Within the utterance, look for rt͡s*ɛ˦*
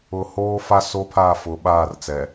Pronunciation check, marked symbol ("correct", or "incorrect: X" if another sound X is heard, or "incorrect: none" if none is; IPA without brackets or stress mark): incorrect: ɛ˨